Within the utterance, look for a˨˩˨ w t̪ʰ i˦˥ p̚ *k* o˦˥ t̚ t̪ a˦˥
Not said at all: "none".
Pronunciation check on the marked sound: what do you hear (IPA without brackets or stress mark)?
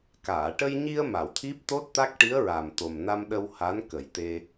t̪